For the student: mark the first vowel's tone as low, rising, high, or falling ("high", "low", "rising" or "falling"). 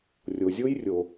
low